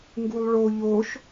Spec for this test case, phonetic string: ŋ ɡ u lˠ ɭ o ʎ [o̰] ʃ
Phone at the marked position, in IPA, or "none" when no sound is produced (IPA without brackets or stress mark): o